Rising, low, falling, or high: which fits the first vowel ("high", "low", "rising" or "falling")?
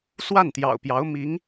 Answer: falling